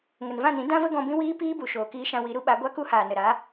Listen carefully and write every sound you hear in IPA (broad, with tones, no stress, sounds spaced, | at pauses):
ŋ ə˨ n v ã˦˨ n ĩ˨˦ d ã˦ v ə˦ ɡ ɔ̃˧ b ĩ˦ w iː˦ p iː˦ b u˨ ʃ oː˨ k iː˧ ʃ ã˧ w i˨˦ ɾ u˦ ɓ a˨˦ ɡʷ a˦ k u˦ h aː˨ n ə˨ ɾ a˨˦